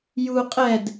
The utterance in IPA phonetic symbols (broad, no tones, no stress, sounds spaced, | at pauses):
j u qʼ ɛ d